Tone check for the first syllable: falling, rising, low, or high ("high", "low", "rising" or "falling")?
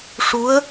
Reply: rising